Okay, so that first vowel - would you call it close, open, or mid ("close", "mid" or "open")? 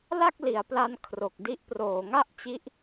open